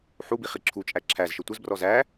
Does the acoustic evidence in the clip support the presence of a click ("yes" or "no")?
yes